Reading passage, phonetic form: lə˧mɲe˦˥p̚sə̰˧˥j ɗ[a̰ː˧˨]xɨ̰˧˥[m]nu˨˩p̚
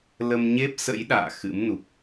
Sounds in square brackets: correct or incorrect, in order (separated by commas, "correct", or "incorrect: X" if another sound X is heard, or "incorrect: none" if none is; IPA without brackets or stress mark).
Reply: correct, correct